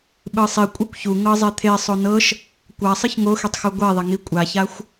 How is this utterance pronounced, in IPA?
ɓ ɯ sˤ i kʷʼ ɯ kʷ ç u ŋ ɤ zˤ e t̪ʰ e sˤ o n ɤ ʃ | kʷ a sˤ ɯ ç ŋ o x e tˤ x u ɡʷ ɛ ðˤ ɛ ŋ i kʷʼ a ç a xʷ

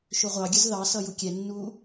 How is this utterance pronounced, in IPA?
ʃ ʊ ʁʷ ɑ ɡʲ ə z ð ɑ s ʌ j u kʲ ɛ nː uː

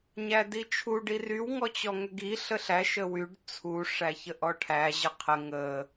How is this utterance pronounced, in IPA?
ɲ æ d i t͡ʃʰ u ɖ i r y w ŋ ɔ t͡ɕ ɔ ŋ ʏ ɡ i ɬ ə ɬ æ ʃ ə w y ɖ t͡sʰ u ʂ æ ç ə ʔ ɔ ʈʰ æ ʑ ə qʰ ə ŋ ə

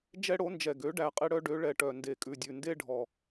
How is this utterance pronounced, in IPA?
d͡ʒ ɛ˦ ɽ o˩˥ n d͡ʒ ɛ˨˩ ɡ ø˩˥ ɖ æ˨˩ qʼ e˦ ɽ œ˦ ɖ ø˩˥ ɭ ɛ˨˩ ʈ œ˨˩ n d e˨˩ kʼ ʉ˨˩ dʲ ʉ˨˩ n d e˦ ɖʱ ɔ˨˩

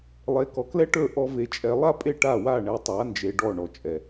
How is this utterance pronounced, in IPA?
lˠ e˨˦ k ɔ˨ k l ɛ˦ ʈ ə˞˦˨ ʔ ɔ˦ v e˧ t͡ʃʼ ɛ˧ lˠ a˦ pʼ e˦˨ ʈ a˦˨ w a˦˨ ɳ ɛ˧ tˤ a˨˦ n d͡ʒ e˧ ɖ ɔ˦˨ ɳ ɔ˨ t͡ʃʼ ɛ˨

